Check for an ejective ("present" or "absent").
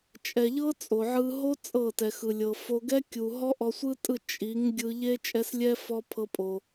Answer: present